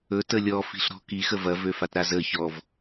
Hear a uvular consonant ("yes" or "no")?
no